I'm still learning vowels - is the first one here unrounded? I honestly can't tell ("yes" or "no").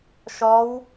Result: no